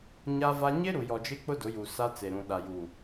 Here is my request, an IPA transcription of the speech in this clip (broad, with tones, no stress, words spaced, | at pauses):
ɲa˦va˦ ɲɪ˦ ɾu˨jɔ˨d͡ʒɪ˦k͡pʊ˦ dʊ˨˦ju˨sa˦ t͡se˨ɾũ˨ ɗa˨juː˨